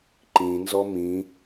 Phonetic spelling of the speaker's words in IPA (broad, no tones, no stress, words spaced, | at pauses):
ǃĩnzɔ mĩ